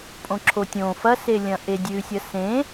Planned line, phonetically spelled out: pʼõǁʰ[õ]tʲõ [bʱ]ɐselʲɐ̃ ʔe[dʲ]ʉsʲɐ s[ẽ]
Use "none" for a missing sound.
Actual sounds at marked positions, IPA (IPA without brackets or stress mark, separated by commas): o, f, dʲ, ẽ